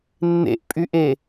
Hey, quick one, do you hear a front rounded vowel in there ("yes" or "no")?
yes